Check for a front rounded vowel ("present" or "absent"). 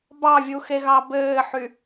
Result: present